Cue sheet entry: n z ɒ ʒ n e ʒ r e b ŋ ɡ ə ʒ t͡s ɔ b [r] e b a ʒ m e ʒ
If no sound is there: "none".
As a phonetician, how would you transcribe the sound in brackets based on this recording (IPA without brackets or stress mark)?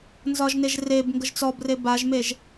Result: r